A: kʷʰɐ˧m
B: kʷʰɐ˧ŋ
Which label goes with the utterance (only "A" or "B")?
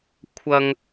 B